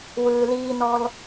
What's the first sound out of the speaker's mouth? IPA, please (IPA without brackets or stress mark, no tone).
w